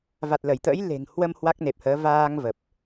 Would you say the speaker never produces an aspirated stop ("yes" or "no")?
yes